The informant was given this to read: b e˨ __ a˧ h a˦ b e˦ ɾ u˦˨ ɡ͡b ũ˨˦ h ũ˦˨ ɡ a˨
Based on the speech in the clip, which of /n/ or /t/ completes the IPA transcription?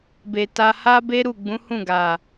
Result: t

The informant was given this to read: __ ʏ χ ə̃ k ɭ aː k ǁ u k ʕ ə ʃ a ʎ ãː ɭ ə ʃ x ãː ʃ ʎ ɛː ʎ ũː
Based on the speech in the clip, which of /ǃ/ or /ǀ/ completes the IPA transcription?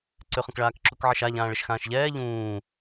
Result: ǀ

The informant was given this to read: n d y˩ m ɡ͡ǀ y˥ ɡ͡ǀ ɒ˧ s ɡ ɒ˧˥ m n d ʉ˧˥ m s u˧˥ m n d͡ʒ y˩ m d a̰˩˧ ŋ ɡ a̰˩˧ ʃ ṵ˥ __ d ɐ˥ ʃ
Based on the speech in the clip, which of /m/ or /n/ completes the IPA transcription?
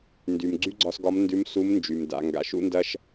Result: n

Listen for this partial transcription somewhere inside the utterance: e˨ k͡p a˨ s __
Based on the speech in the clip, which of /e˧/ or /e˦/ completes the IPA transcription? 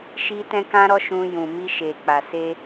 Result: e˧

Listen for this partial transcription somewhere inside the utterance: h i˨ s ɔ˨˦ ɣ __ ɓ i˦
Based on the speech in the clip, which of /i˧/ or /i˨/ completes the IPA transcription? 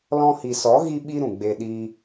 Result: i˧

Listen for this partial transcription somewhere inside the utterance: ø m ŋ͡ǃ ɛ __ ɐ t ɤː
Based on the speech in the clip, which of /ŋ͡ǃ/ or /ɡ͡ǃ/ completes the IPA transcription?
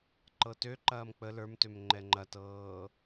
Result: ŋ͡ǃ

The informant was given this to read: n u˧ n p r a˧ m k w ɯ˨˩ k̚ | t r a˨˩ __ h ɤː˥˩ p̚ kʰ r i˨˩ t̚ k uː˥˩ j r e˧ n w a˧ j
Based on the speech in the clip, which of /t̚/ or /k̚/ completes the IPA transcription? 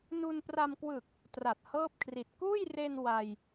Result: t̚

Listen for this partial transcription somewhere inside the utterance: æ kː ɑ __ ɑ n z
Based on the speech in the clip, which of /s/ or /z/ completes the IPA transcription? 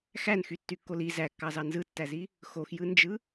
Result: z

